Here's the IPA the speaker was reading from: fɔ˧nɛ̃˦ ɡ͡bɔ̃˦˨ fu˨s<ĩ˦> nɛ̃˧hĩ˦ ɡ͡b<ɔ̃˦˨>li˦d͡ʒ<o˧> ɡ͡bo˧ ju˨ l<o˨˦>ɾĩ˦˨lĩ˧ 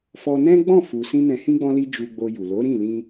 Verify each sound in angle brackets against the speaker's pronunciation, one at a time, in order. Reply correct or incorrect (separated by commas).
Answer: incorrect, incorrect, incorrect, correct